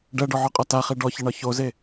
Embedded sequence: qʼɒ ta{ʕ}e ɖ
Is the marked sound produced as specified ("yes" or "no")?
no